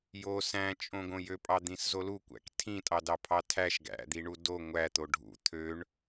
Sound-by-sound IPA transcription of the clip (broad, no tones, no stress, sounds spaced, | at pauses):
j o s æ̃ t͡ʃʼ õ ɡ õ j ø pʼ ɑ d̪ ĩ s z o l u kʷ æ̰ k tʰ ĩ tʼ ɑ d ɑ pʰ ɑ tʰ æ ʃ ɡ æ̰ d̪ i ɳ u d o ŋʷ æ t̪ o ɖʱ ṵ t̪ʰ ø ɳ